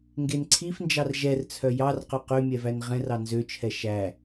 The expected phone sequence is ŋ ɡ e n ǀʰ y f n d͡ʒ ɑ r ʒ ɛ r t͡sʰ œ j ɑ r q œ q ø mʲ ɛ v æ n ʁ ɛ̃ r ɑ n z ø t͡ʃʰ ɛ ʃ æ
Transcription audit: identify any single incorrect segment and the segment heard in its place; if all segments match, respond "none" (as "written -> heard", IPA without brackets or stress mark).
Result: y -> i